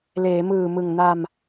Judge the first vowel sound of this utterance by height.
mid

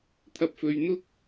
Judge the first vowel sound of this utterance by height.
low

